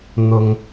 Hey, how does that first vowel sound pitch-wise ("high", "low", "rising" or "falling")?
low